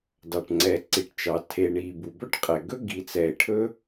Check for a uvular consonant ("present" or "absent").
present